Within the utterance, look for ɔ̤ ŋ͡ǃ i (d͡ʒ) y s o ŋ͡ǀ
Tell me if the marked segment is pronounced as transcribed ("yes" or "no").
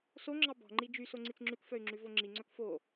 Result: yes